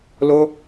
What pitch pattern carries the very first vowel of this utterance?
high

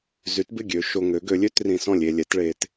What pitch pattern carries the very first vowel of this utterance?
rising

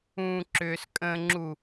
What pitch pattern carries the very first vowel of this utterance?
low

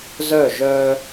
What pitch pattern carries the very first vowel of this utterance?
falling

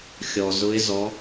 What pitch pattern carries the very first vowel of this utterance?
low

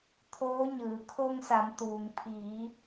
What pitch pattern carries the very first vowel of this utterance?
rising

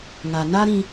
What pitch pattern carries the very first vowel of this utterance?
low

